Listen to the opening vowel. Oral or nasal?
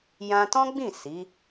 nasal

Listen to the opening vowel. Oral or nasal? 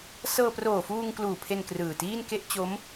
oral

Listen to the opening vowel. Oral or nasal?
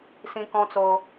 nasal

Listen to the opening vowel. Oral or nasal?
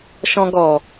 nasal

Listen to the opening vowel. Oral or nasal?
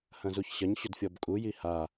nasal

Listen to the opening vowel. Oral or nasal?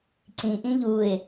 nasal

